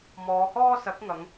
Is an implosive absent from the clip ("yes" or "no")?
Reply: yes